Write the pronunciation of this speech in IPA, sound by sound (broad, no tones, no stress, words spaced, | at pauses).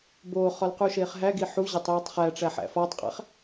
boːχɒl quʃeːχɦæɡi ħuʑetˤ jetˤχæʈ͡ʂæ ħæ̰fɒːtˤqʼæ̰χ